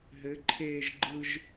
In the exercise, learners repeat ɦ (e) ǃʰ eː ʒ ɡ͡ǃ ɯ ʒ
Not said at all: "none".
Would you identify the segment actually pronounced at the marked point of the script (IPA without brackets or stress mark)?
ɘ